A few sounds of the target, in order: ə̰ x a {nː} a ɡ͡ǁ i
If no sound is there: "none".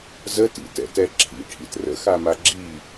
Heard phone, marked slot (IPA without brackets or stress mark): m